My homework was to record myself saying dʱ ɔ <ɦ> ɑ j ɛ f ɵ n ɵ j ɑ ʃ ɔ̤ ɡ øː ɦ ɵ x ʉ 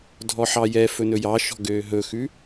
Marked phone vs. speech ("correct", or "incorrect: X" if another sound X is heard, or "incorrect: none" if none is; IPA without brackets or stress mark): incorrect: ħ